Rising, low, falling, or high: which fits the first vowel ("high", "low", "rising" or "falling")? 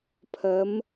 rising